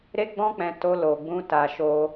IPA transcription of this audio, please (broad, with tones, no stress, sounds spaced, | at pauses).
ɾ e˦ ɡ͡b ɔ̃˦ k͡p ɛ̃˧ t o˧ l o˨ ɡ͡b ũ˧ t a˨ ʃ o˧